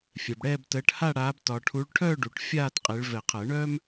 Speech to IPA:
fʲ ɛ˨ b ɽ ɛː˥˧ b t əː˨˦ ʈ h a˥˧ ɽ aː˨˦ b t ɒ˨ ʈʰ u˨˦ ɭ ʈʰ œ˥˧ ɖ u˨˩˦ ʈ fʲ aː˥˧ t qʼ e˨˦ ɭ v ɛ˨˩˦ qʰ əː˨˩˦ ɳ œː˥ m

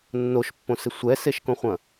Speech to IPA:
nː o ʃ pː õ s ɪ sʷ ɛ s e ʃ k õ χʷ ɐ̃

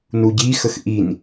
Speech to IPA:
n u ɟ i x ə x ʔ i n

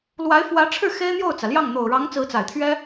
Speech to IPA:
l w a˧˥ ɪ̯ f w ä˧˥ ʈ͡ʂʰ ɻ̩˥˩ x e˥ ɪ̯ n̪ j o˥˩ ʊ̯ t͡s ä˩ l j ɑ˥˩ ŋ n̪ o˨˩ ʊ̯ ɻ ɑ˧˥ ŋ t͡s ɹ̩˧˥ t͡s a˨˩ ɪ̯ t̪ʰ ɥ ɛ˥

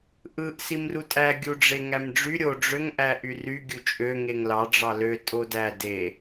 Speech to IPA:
ʔ ɯ ʔ s i m r u tʼ æ ɡʲ u ɖ͡ʐ e ŋ æ m ɖ͡ʐ y ɾʲ o ɖ͡ʐ ø ŋ ʔ æ ʔ y r y ɡʲ u t͡ʃʼ ø ŋ e ŋ l ɑ ɖ͡ʐ ɑ l ø tʼ o d æ d e

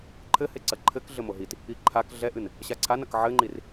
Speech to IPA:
ǃʰ ɘ h e ǀ ɐ ǃʰ ɘ k ɮ ɘ m o ɦ i t | i ǃʰ a k ɮ ɛ ʔ ɨ n | ɕ a ǀʰ a n ɐ k ʕ ɘ ŋ͡ǃ i r

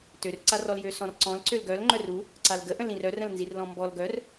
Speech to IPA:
t ø r ǀ a r ɔ l j ø s ɔ̃ r ǀ ɔ̃ l ǀ ø l ɡ œ l ŋ͡ǃ œ r u | ǀ a l ɡ ə ʔ ə̃ l ĩ r œ r ə̃ l n z i r l ɔ̃ m b ɔ l ɡ œ r

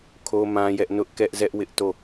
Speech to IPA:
kʰ o˦ m ã˦ j ɛ˦ ʔ n ʊ˦ ʔ k ɛ˦ ʔ z ɛ˦ ʔ w ɪ˦ ʔ t o˦˨

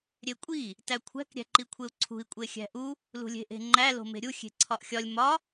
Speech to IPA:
ɾʲ e kʷʼ i | t æ kʷʰ æ̤ k ɾʲ æ̤ ǃ i kʷʰ e u̯ ǀʰ ṳ i̯ kʷʼ e xʲ æ̤ ʔ u | l ṳ lʲ e̤ ʔ e̤ ŋ͡ǃ æ l o̤ m e̤ ɾʲ u xʲ e̤ ǀʰ ɒ ʔ xʲ ɒ lʲ m ɒ

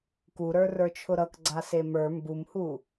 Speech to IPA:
k u ɾ ə˞ r ə˞ t͡ʃʰ ʊ ɾ ʌ k ɡ͡ǀ a s e m ə˞ m b u m h u

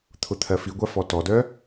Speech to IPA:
t̪ʰ ʊ t̪ʰ ɜ f i ɡʷ a f ɔ t ɔ d œ

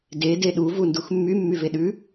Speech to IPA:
d e d e ɗ u v u n d u x mː y mː y v e ɗ ʉ

